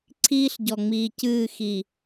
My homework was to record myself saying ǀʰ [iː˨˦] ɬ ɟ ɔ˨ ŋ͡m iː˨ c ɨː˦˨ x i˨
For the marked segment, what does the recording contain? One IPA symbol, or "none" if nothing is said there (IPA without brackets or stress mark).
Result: iː˦